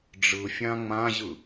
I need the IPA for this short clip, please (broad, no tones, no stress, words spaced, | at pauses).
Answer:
ɖ͡ʐɯ fʲãŋ͡mãʑɯ